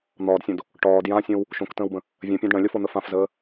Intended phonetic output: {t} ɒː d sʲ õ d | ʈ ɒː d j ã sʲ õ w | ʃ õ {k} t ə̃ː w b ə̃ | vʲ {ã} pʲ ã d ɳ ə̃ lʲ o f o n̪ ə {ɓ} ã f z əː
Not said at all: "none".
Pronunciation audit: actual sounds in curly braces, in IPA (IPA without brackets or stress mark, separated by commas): n̪, k, ə̃, f